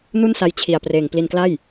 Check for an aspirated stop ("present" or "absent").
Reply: present